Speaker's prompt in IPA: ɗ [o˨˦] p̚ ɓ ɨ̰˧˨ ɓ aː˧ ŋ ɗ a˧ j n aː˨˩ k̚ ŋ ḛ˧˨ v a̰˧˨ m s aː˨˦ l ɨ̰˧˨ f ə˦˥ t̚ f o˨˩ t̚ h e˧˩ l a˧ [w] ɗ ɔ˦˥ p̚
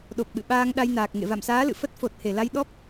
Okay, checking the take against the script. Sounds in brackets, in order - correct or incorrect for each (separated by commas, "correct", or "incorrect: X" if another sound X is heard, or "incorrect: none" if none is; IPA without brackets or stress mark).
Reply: incorrect: o˨˩, incorrect: j